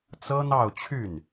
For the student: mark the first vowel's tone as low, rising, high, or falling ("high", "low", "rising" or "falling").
high